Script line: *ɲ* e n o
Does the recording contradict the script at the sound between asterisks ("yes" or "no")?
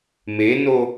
yes